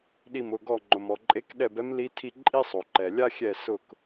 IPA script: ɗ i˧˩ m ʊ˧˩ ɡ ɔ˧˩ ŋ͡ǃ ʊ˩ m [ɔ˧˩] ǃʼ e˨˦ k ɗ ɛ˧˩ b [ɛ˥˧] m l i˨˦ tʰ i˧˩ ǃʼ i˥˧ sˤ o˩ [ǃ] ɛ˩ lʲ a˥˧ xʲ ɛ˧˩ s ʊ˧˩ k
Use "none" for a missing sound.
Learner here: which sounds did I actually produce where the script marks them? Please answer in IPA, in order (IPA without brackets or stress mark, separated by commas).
ɔ˩, ɛ˨˦, ǃ